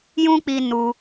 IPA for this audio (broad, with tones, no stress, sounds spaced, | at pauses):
j ũ˦ k͡p iː˧ n u˦